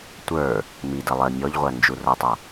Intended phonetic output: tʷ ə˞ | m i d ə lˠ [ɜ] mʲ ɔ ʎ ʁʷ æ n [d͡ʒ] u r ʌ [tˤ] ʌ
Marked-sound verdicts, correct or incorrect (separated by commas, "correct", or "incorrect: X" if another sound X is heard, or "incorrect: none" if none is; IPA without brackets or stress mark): correct, correct, correct